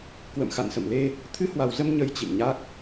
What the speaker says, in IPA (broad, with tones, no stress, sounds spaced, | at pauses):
k w ə̰˧˨ m x a̰˧˨ n s ə̰˧˨ m l e˧ | t̪ʰ ɨ˧ h w a˨˩ w z ə˧ m ɲ ə˧ j t͡ɕ ḭ˧˨ ŋ ɲ a˦˥ k̚